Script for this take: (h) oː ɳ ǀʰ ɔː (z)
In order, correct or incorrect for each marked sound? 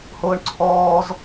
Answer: correct, correct

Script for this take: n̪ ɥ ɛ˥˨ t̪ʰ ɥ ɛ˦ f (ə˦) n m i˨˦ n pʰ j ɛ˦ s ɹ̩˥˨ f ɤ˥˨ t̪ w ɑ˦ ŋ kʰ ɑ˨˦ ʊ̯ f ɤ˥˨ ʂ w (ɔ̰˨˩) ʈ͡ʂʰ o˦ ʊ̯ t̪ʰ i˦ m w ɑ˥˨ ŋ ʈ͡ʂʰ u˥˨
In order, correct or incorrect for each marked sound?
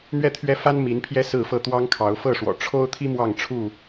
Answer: incorrect, correct

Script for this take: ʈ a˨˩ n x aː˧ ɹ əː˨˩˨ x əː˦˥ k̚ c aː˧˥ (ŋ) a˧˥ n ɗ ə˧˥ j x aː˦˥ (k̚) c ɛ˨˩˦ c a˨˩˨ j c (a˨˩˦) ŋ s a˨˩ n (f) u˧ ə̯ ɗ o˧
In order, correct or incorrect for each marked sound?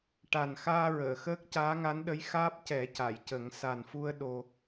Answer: correct, incorrect, incorrect, correct

